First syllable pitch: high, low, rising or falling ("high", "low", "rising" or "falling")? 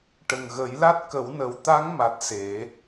low